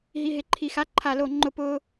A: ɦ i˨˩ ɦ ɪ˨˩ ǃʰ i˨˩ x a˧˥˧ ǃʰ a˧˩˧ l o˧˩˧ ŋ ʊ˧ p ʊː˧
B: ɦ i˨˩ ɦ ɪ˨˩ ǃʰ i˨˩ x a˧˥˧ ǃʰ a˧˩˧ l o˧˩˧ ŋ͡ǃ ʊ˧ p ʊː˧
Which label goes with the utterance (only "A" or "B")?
B